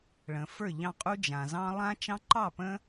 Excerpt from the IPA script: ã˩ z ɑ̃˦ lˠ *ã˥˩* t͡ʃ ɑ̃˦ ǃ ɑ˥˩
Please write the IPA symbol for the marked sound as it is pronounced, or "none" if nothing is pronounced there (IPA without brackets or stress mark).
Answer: ã˦